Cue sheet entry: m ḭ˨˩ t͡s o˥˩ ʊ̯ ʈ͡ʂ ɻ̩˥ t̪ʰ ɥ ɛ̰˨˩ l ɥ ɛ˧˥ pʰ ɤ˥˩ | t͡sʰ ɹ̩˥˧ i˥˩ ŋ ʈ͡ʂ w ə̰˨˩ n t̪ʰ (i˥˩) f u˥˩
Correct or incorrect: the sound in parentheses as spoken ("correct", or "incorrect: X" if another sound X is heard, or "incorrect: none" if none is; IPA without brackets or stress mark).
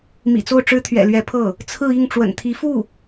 incorrect: i˧˥